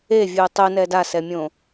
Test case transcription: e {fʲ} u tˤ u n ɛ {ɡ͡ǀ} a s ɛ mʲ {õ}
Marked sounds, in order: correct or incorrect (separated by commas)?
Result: incorrect, incorrect, correct